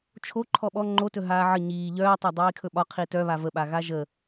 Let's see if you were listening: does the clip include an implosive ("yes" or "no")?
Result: yes